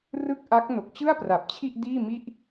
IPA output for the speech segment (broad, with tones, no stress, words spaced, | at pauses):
rɯ˥˩k̚ʔa˦˥k̚ no˨˩k̚t͡ɕɯ˥˩a̯pra˨˩p̚t͡ɕʰi˥˩ʔ diː˥˩mi˥˩ʔ